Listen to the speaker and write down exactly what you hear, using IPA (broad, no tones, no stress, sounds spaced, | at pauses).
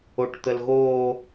o ʈ t̪ ə l ɣ oː